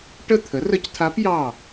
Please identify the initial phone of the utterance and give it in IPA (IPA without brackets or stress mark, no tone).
ʈ